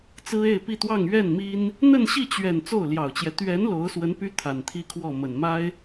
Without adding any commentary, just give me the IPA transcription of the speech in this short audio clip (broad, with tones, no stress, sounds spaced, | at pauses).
t͡s ɹ̩˥ e˥˧ ɪ̯ p i˥˧ t̪ w ɑ˥˧ ŋ ɥ ɛ˥˩ n m i˥ n | n̪ ə˥˧ n ɕ i˥˩ t͡ɕ ɥ ɛ˨˩ n t͡s o˥˩ ʊ̯ l j ɑ˨˩ ʊ̯ t͡ɕ j ɛ˦ t̪ ɥ ɛ˧˥ n l o˧˥ ʊ̯ s w ə˧˥ n p y˥ t̪ʰ a˨˩ n t̪ʰ i˥ kʰ w ɔ˥˩ m ə˨˩ n m a˥ ɪ̯